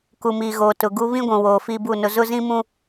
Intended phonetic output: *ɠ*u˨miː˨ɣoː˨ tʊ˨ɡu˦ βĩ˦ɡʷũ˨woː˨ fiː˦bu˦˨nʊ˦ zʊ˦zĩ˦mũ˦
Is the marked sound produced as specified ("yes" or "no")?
no